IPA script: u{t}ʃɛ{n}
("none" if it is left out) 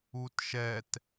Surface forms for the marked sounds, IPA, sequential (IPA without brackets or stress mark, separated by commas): t, t